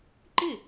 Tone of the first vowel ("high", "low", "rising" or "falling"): falling